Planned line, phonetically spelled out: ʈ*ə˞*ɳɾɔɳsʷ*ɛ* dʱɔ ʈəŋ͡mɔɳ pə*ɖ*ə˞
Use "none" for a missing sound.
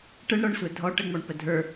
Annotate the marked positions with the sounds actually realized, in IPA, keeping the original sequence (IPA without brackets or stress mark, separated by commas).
ə, ɛ, dʱ